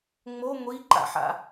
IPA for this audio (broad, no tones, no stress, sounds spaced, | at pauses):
ŋ͡m o ŋʷ i ǃ a̰ ħ a̰